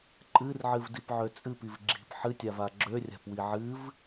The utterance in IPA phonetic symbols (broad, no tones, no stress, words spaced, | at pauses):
ǃʼɨrʕɨv dipʕøt͡sʼɨpiv ɡ͡ǁi̤p ħɨtʲava ɡ͡ǁørʲa̤pwi ʕɨv